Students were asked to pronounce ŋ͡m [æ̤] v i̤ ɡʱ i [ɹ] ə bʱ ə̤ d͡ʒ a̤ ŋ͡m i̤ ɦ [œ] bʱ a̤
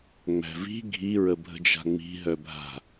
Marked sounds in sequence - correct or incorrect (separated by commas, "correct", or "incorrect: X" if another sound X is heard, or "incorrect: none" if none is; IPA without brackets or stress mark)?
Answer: correct, correct, correct